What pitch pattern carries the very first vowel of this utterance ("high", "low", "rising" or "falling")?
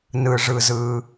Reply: low